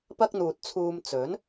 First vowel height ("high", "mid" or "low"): low